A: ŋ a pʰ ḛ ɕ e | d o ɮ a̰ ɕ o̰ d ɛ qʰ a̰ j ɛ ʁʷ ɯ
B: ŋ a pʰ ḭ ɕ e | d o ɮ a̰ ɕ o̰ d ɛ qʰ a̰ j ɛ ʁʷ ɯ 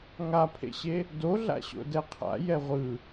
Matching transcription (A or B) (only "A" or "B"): A